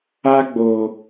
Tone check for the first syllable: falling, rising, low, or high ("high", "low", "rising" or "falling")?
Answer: high